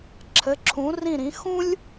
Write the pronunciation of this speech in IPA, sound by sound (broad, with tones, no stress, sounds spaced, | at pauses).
ǁʰ ɘ˨˦ ǁʰ ũ˨˦ r ĩ˦˨ ɾ ĩ˨˦ x ũ˦ lʲ